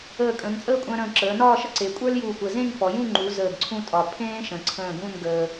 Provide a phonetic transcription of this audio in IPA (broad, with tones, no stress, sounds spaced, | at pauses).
əː˧˩ kʼ ə̃ː˩˧ ŋ t͡sʼ əː˥˧ kʷʼ ə̃ː˧ ɾ ə̃ː˧˩ ǁ əː˩˧ n ɒː˥˧ ʃ ə˥ ǀ e˩˧ kʷʼ ə˞˥ l j uː˧˩ kʷ ə˧˩ z ẽ˥˧ ŋ f ɔ˩˧ j ũ˥˧ ŋ͡ǃ u˩˧ z əː˧˩ ɡ ǀʰ ũ˥˧ tʼ ɒ˧˩ pʰ ẽː˥ ʃ ə̃˩˧ ǀʰ ə̃ː˧˩ ɡ ũ˥˧ n ɡ əː˧